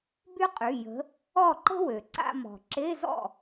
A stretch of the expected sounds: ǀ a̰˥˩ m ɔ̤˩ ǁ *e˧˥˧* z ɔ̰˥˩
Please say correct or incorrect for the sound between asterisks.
correct